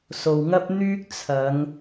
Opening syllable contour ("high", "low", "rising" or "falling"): low